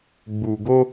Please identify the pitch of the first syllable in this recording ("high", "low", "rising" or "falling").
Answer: low